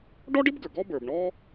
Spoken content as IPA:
ɖ ɔ˥ ɖ ɪ˥ b ɡ ə˞˩ ɡ ɔ˥ b ə˞˩ b ɳ ɔ˥

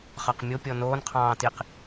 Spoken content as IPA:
χ ɑ q mʲ o pʲ ɔ n oː n qʰ ɑ̃ː t i q

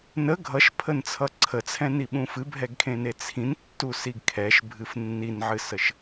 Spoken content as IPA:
n ə ɡʱ ʌ ʃ pʰ ə n t͡sʰ ʌ ǀʰ ə t͡sʰ ɛ̃ n i ɓ ũ f ɨ bʱ ɛ ɡ kʰ ẽ n e t͡sʰ ĩ n tː u s i ɡ kʰ ɛ ʃ bʱ ɨ f nː i n ʕ ɨ s ə ʃ

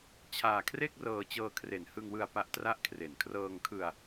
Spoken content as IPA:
t͡ɕʰ aː˧ kʰ r e˥˩ k̚ r ɤː˧ t͡ɕ ɤː˧ kʰ r e˨˩ n h ɯ˧ ŋ w ɯ˧ a̯ p a˦˥ ʔ t r a˥˩ ʔ kʰ r e˨˩ n kʰ r ɤː˧ ŋ kʰ ɯ˧ a̯

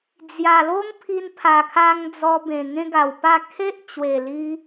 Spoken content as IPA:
d͡z j a˨˩ l o˦ ŋ pʰ i˧ n pʰ a˨˩ kʰ a˧ ŋ d͡z ɔ˧ b ẽ˨˩ ŋ ẽ˦ ɡ a˨˩ w p a˥˧ kʰ e˦ ʔ t͡ɕ w e˨˩ l i˧

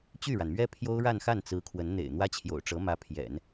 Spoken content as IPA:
t͡ɕ y˥˩ ɻ a˩ n m ɥ ɛ˥ pʰ j o˥ ʊ̯ ɻ a˥˧ n x a˥˩ n t͡s ɹ̩˧˥ kʰ w ə˧˥ n n̪ ḛ˨˩ ɪ̯ n̪ w ä˥ t͡ɕʰ j o̰˨˩ ʊ̯ ʈ͡ʂ ɤ˧˥ m ä˧˥ pʰ j ɛ̰˨˩˦ n

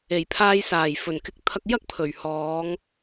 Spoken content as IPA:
e˨˩ j pʰ aː˧ j s aː˨˩ j f ɵ˨˩ n k ɪ˧ k̚ t̪ʰ ɐ˧ k̚ j ɐ˥ k̚ pʰ ɵ˨˩ ɥ h ɔː˨˧ ŋ

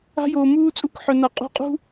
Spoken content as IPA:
a̤˦ j oː˨ m uː˦ t͡sʼ u˦˨ k ħ œ˨ n a˨ qʼ ṳ˧ qʼ ṳ˦

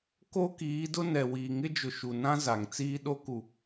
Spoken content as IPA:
k o˦ k iː˨˦ d ʊ˦ n ɛ˨ w iː˨ ŋ ɪ˦ d͡ʒ ʊ˨ ʃ u˨ n ã˦ z a˨ ŋ t͡s iː˦ ɗ o˦ k u˨

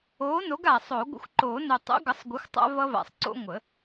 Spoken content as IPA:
oː˨˥ n o˨˥ ɡ a˨˩ sˤ o˨˩˦ ɡʷ ə̰˨˥ xʷ ǃ oː˨˩˦ n o˨˩ tˤ o̰˨˥ ɡ ʌ˨˥ sˤ ɡʷ ə˨˥ xʷ tˤ a̰˦ v ʌ˦ v a̰˨˩ sˤ ǀ o̰˦ ŋʷ ə˨˩˦

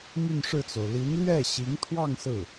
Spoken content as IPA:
m y˥˧ n ʂ ɻ̩˥˩ t͡s o˩ ʊ̯ l i˧˥ n l ɥ ɛ˥˩ ɕ i˧˥ ŋ t̪ʰ w ɑ˥˧ ŋ s ɹ̩˥˩

